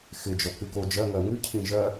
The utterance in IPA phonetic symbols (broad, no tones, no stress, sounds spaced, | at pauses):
x ɪ d͡ʒ ɔ k ʉ k o d͡ʒ ɜ ŋ ɜ ŋ ʉ cʰ ĩ ʒ ɜ